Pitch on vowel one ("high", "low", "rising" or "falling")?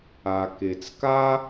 low